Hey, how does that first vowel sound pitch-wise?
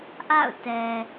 falling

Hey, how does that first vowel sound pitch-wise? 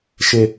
low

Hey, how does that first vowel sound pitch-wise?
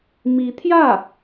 rising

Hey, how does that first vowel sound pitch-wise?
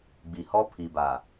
low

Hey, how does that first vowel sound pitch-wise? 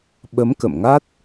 rising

